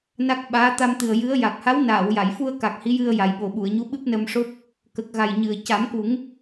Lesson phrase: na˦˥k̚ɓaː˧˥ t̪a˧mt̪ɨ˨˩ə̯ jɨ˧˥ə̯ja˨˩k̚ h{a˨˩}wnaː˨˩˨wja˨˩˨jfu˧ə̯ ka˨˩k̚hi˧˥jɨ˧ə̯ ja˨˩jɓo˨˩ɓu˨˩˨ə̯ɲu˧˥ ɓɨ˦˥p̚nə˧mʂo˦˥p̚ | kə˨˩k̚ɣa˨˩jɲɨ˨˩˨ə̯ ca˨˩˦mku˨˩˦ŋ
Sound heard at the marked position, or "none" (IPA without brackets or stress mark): a˧˥